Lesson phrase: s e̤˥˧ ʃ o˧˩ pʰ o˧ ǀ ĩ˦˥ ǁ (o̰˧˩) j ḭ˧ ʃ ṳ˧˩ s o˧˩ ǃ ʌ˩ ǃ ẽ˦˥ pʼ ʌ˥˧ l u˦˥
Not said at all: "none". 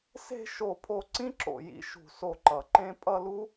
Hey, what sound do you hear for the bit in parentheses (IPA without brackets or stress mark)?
o̰˧˩